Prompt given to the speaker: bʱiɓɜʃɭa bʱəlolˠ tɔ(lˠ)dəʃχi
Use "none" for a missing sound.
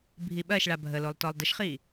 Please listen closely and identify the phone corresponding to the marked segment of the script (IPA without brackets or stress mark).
lˠ